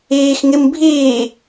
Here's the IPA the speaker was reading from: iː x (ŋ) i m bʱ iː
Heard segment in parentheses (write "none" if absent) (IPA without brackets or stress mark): ŋ